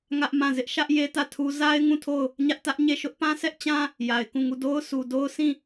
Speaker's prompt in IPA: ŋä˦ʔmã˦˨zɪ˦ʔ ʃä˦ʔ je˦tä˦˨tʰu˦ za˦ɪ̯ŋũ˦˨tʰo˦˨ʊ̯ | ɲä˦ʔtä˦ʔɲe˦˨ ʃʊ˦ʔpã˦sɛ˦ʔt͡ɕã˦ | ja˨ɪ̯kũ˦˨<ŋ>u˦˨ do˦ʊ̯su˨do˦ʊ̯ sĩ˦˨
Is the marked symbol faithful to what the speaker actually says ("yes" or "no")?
yes